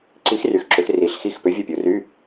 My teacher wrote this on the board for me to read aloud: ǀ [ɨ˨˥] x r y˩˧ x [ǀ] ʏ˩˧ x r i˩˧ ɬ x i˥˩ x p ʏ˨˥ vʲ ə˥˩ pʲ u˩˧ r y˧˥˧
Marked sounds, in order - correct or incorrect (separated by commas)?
incorrect, incorrect